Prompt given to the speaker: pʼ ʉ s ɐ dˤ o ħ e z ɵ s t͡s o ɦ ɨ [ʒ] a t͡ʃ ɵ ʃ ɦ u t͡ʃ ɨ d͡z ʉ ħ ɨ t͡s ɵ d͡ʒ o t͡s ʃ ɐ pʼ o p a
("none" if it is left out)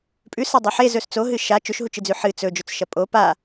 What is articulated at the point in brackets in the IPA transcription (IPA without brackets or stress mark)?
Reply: ʃ